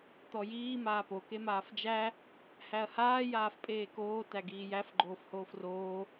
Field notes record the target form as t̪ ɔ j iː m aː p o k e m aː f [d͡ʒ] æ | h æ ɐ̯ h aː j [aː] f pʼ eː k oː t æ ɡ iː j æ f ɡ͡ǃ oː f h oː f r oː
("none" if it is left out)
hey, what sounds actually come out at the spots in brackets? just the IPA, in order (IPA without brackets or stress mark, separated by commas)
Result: d͡ʒ, aː